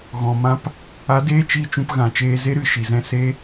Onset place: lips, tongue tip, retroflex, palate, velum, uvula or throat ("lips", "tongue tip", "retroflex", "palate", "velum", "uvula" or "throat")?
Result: velum